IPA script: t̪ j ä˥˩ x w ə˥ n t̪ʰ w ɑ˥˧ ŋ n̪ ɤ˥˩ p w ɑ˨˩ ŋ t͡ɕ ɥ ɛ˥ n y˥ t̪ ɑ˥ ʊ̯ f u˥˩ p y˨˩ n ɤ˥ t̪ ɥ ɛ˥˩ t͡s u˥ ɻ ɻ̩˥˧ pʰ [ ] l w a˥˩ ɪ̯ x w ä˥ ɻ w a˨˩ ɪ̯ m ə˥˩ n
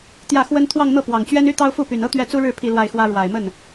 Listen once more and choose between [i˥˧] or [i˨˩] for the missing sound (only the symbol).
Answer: i˥˧